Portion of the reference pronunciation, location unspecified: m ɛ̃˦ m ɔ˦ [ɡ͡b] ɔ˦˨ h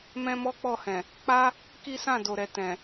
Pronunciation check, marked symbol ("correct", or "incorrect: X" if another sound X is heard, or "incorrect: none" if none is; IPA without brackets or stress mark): incorrect: k͡p